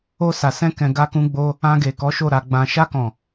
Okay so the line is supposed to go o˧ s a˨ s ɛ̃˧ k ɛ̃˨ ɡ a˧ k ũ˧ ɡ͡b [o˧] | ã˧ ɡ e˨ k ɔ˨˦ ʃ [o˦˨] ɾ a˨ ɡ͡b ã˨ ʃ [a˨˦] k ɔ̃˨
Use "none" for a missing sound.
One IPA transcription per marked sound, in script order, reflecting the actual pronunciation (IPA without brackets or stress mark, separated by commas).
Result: o˧, o˦˨, a˧